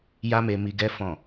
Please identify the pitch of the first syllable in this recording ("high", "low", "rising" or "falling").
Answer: high